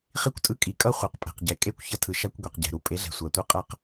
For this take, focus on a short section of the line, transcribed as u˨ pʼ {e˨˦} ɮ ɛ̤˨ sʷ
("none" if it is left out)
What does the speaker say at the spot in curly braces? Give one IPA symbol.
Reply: e˨˦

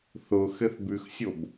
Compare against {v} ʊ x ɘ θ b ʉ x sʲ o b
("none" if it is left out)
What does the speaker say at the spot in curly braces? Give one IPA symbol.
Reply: θ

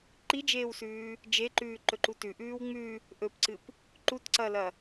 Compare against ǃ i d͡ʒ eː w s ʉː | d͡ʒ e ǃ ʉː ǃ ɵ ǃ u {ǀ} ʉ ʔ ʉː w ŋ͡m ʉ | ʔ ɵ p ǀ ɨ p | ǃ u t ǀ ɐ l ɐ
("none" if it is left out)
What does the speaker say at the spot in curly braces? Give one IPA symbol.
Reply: t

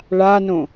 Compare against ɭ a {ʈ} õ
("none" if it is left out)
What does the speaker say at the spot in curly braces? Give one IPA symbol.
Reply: n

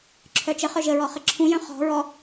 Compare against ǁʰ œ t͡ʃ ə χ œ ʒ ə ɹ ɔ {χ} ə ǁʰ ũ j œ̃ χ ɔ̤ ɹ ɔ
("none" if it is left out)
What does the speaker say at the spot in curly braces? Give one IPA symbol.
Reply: χ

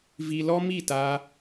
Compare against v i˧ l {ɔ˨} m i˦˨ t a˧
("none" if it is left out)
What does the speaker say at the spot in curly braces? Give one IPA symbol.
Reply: ɔ˦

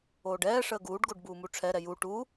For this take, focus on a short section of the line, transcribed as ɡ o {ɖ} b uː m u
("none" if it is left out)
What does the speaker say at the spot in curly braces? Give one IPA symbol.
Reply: ɖ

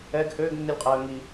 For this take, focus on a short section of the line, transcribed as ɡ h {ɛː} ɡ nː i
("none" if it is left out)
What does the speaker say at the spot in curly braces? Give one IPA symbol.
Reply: øː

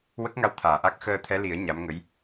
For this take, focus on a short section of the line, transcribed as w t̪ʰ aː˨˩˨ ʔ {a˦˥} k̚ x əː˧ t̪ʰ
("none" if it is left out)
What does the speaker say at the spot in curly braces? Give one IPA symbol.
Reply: a˦˥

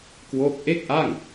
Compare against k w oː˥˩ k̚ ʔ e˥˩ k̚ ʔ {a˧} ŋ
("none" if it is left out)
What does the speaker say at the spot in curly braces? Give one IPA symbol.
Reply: a˥˩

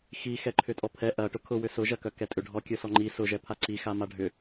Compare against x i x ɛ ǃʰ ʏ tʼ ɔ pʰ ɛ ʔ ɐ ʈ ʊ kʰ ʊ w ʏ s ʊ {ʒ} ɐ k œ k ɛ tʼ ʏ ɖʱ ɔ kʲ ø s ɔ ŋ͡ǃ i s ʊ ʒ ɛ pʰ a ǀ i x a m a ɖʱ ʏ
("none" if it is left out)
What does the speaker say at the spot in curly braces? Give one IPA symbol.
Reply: ʒ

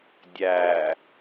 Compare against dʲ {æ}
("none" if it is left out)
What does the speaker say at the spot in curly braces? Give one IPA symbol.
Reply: æ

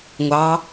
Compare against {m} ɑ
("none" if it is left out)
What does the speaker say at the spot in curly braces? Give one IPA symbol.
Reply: ŋʷ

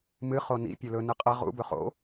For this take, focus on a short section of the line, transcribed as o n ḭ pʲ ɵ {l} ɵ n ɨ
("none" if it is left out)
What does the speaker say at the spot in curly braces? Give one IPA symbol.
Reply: l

